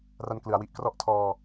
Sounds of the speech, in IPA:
ra˧nklɯ˩˦a̯wi˨˩ʔkrɔ˦˥ʔ tʰɔː˧

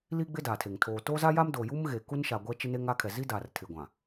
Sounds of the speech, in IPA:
liː˦ɡ͡bɪ˦ daː˨tʰe˨ŋ tʰoː˨toː˦za˦ja˦m do˨ju˦m ɣe˨ku˦n ʃa˨ ɡʷɛ˦ t͡ʃɪ˦ne˦ŋ a˦kʰɛ˨ zi˦daː˨rtʰɪ˨ ɡʷã˨

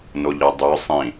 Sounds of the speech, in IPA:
noʎɯdˤø sˤĩ

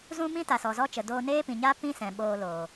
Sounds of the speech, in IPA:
zũ˦mĩ˦ ta˨sɔ˨zɔ˦t͡ʃə˨ doː˧neː˦pĩ˨ɲaː˦ pĩ˦sɛ̃˨ ɓoː˧loː˨

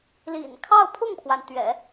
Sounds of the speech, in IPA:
lḭ˨˩n kʰɑ˥˧ʊ̯ pʰʊ˥˩ŋpʰwa˩n t̪ɥɛ̰˨˩˦

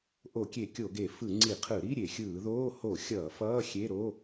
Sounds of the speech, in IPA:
ʔo˧˩˧kʲe˧˩˧ kʲo˧˩˧ɡe˧˩˧ fɯ˧˩˧ ŋ͡ǀi˧˩˧qʰɯ˧˩˧ɾi˧˥˧ ɾʲe˧˩˧xʲɯː˧˩˧ðoː˧˥˧ ho˧˩˧ xʲʌː˧˩˧ fʌː˧˥˧xʲe˧˥˧ ɾo˧˥˧

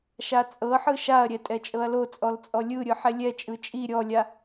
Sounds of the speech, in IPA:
ʃat͡sʼɤħɯ ʃaɐ̯ɾʲɛ tʼɛt͡ʃʼɤɐ̯lot͡sʼɔl t͡sʼɔlʲɯɾʲɯ ħɛlʲɛt͡ʃʼɯ t͡ʃʼi ɾʲɔlʲa

